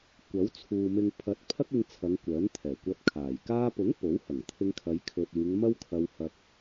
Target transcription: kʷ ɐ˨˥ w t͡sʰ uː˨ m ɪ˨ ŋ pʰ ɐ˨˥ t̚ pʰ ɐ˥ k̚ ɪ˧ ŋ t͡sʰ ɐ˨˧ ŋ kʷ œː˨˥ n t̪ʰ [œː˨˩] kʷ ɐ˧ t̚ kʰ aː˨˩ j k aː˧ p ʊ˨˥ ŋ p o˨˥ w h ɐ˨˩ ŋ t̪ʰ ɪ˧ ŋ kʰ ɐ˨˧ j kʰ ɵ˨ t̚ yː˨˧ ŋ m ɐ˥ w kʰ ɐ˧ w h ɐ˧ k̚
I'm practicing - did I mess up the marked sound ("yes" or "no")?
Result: yes